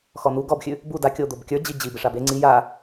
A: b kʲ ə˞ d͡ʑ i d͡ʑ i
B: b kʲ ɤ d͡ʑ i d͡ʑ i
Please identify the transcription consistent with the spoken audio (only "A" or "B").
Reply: A